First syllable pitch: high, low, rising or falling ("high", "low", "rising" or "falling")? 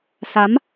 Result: rising